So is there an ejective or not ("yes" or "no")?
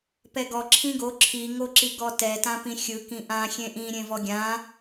no